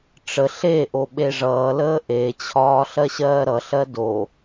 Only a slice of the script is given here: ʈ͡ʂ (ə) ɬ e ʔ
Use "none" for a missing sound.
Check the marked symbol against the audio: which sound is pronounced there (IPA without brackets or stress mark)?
ə